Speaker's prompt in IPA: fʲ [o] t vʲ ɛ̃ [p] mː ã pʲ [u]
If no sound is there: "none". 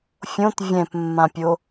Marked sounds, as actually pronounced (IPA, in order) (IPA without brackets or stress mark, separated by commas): õ, p, o